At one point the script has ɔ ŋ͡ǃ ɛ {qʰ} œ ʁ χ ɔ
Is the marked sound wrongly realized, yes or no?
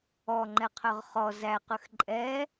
no